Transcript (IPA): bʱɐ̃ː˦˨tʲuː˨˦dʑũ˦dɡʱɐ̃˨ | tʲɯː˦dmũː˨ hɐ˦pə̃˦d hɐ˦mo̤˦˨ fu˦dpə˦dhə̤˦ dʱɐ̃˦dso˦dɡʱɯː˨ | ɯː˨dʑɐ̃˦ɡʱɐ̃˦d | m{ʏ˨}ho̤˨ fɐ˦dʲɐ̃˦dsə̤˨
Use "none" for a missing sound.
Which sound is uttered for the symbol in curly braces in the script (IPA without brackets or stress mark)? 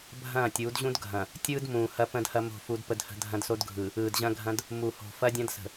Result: u˨